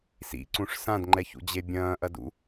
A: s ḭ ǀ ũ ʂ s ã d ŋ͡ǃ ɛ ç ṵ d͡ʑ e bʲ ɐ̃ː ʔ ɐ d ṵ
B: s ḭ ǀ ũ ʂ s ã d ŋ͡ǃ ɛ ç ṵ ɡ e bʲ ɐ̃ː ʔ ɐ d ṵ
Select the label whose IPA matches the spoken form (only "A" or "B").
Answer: A